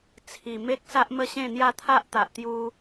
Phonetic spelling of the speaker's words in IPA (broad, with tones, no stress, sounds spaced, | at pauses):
t͡sʰ i˨˩ m e˦ k̚ s a˦ ʔ m ə˥˧ ɕ ẽ˥˧ n̪ j a˥˧ t̪ʰ a˦ ʔ t̪ a˨ ʔ t̪ j u˧